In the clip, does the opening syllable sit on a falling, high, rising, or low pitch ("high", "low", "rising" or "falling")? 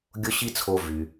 high